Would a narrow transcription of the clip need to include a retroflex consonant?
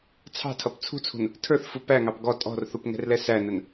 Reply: no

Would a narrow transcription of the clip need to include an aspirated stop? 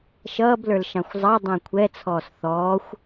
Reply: yes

